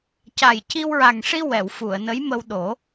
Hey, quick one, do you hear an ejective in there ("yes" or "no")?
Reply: no